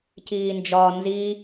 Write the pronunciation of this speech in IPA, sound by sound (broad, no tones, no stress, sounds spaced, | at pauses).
c iː n d͡ʒ ɒ n z i